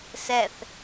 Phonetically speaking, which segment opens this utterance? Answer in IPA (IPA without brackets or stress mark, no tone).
s